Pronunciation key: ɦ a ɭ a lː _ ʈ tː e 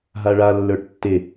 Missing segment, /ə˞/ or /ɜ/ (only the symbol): ə˞